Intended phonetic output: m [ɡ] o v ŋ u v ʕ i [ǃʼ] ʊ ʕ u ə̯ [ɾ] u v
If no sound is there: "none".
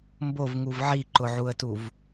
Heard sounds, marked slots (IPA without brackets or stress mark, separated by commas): b, ǃ, t